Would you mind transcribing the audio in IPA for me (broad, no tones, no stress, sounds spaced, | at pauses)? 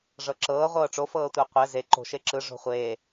ʐ ɤ ǁ ɤː ʁʷ ɤː ʈ͡ʂ o f ɤː tʷ a qʷ ɛ z e ǃ o̤ ʃ e ǁ ɯ ʐ o̤ χʷ eː